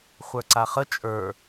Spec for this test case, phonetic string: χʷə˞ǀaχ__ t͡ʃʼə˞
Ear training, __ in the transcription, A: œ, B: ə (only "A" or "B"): B